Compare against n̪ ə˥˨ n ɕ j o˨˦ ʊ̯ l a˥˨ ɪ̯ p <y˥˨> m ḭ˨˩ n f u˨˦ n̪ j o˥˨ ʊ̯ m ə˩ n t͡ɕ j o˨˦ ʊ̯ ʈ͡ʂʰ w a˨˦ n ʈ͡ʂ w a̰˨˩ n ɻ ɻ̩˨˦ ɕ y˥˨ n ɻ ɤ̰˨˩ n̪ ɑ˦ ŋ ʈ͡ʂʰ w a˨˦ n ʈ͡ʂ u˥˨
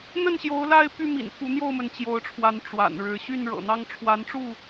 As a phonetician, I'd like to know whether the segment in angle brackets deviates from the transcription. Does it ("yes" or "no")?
no